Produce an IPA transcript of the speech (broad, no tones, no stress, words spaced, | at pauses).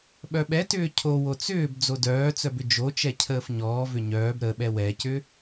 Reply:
ɓœɓɛtʏː cʰo wot͡sʏːb d͡zodœːt͡sœbʏ d͡ʒot͡ʃɛ cʰəːfɲɔː vʏɲœːb ɾəɓɛ wɛcʏ